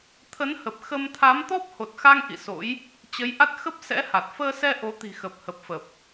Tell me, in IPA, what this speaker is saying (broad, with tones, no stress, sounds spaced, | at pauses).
t̪ʰ ə˨˦ n h ə˨˩ p̚ x ə˧ m t̪ʰ a˨˦ m t̪ ɔ˦˥ p̚ h o˨˩ t̚ x a˧ ŋ ʔ ḭ˧˨ s o̰˧˥ j | t͡ɕ ə˨˦ j ʔ a˦˥ t̚ x ə˦˥ p̚ s ɛ̰˧˥ h a˨˩ t̚ f əː˧ s ɛ˧ ʔ o˨˦ t̪ i̤˨˩ x ə˨˩ p̚ h ə˨˩ p̚ f ə˨˩ p̚